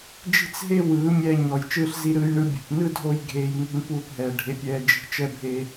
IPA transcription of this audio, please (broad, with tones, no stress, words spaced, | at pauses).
d͡ʒi̤˦t͡sɦe˦ wɯː˨˦ mʲɛː˧ɲɔ˨j t͡ʃɯː˧ɬzi˧ɾɯː˧jɳɯ˧ bʲṳ˨pnɯ˦ dʱo˦jɡʱeː˧j ŋṳ˦npuː˦pɦɛː˨ ɖʱe˧pʲɛː˧ d͡ʒi̤˧ t͡ʃɛ˦bʱeː˧